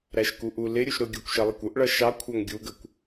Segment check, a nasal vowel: absent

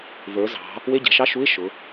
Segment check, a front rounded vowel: absent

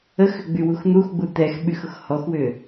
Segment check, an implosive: present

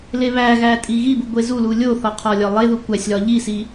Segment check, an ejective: present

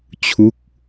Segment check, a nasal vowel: absent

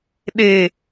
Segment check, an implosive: present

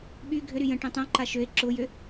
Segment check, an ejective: absent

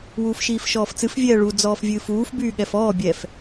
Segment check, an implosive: present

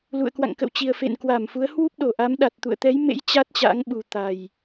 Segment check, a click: absent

